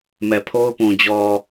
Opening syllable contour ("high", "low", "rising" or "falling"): low